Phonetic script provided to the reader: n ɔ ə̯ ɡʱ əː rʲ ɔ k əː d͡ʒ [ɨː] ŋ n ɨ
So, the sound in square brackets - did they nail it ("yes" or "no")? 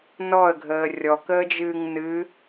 yes